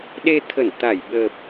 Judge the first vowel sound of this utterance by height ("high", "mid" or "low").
mid